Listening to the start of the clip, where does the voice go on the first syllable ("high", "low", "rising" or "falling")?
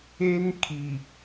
high